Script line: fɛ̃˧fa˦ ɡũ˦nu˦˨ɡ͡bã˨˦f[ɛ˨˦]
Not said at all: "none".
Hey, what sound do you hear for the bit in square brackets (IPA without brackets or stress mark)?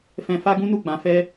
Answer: ɛ˦